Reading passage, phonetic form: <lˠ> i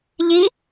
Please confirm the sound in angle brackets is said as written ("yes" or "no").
no